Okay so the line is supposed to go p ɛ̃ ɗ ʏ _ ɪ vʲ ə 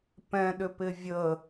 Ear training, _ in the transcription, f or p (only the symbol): p